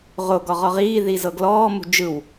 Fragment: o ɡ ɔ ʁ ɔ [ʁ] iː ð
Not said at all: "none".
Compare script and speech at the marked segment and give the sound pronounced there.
ʁ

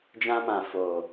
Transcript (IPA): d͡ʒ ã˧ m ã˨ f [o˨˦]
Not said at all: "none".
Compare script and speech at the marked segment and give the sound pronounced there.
o˨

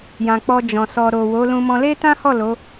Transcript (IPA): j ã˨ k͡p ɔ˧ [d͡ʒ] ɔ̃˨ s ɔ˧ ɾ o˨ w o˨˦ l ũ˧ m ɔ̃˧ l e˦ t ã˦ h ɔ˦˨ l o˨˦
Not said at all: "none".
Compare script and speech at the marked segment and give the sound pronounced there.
d͡ʒ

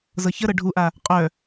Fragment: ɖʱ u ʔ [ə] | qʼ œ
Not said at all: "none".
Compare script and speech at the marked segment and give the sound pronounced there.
a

